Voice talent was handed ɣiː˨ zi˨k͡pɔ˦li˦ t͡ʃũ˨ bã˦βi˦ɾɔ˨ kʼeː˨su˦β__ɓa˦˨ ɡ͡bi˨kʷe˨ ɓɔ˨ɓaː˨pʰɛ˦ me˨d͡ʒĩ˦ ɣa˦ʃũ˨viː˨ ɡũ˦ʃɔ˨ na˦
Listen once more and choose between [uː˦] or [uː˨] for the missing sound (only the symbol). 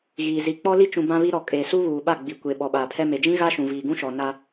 uː˨